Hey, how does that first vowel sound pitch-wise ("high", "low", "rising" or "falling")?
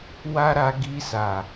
high